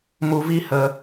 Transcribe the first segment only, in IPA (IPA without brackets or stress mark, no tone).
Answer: m